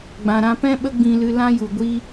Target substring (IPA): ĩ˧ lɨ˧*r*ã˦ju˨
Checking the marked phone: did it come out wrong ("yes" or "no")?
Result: yes